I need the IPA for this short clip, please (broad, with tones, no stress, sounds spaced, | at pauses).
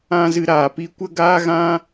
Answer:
ã˦ z ɨ˧ ɾ aː˨ p i˦ kʷ ə˦ ɡ aː˦ ɣ ã˦